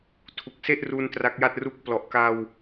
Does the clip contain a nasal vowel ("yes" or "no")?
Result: no